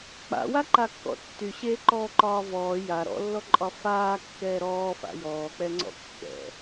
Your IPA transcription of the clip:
k͡p a̰ w a ǃ a kː ɔ̰ tː y ɕ eː ǃ ɔː ǃ ɒː v ɔː j a ɾ ɔ̰ lː ɔ ǃʼ ɒ f aː kː ɛː ɾ ɔː f a̰ j ɔː k͡p ɛ ŋ͡ǀ ɔ̰ kː ɛ̰

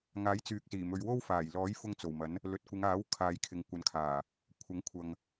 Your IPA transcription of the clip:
ŋ aː˨˥ j t͡s yː˨ k̚ s iː˨˩ m ɵ˨˧ ɥ w o˥ w f aː˨˩ j l ɔː˨˥ j f ʊ˧ ŋ t͡s o˨˩ w m ɐ˨˥ n | l ɵ˨ t̚ kʷ ɪ˨˧ ŋ aː˨˥ w kʰ aː˨˧ j kʰ ɪ˨ ŋ kʷ ɐ˨ n kʰ aː˨˩ | kʷʰ ɐ˨˥ ŋ kʷʰ ɐ˨ ŋ

